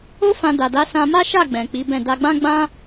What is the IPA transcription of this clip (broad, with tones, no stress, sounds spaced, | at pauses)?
o˦ f ã˧ d a˨ d a˨˦ s ã˧ m a˦ ʃ a˦˨ ɡ͡b ɛ̃˨ k͡p i˨˦ b ɛ̃˦˨ d a˧ ɡ͡b ã˦ ɡ͡b ã˦